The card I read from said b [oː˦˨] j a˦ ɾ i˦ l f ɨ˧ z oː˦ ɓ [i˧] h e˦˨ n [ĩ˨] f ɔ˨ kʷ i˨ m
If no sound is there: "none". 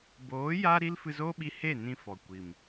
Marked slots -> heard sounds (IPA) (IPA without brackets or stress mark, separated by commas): oː˨˦, i˧, ĩ˧